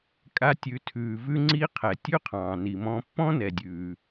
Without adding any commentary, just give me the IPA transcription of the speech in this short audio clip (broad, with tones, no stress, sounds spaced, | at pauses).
kʼ a˧ tʲ ʉ˩˧ tʰ ʉː˩ v ʉ˧ ŋ͡ǀ i˧ qʰ ɛ˩ tʲ ʉ˥ qʰ ɑ̃ː˩ n i˩ m ɔ̃˧ pː ɔ̃˥ n ɛ˩ dʲ ʉː˩